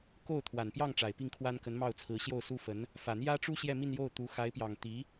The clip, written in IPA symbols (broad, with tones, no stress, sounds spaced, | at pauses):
k o˥˩ ʊ̯ t̪ʰ w a˨˩ n p j ɑ˥˩ ŋ ʈ͡ʂ a˨˩ ɪ̯ p i˥˩ ŋ kʰ w a˥ n k ə˧˥ n m ɑ˥˩ ʊ̯ t͡sʰ ɹ̩˧˥ ɕ j o˥˩ ʊ̯ s u˥ f ə˧˥ n | f ä˨˩ n̪ j ä˥ ʈ͡ʂ u˥ ɕ j ɛ˥˧ m i˥˧ n j o˥˩ ʊ̯ t̪ u˧˥ x a˧˥ ɪ̯ p j ɑ˨˩ ŋ t̪ i˧˥